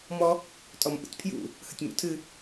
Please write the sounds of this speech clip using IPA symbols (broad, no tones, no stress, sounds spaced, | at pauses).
m ɔ | tʼ ɔ m ʔ ṵ tʲ pʰ j ṵ | h ə tʲ m ṵ tʰ ɨ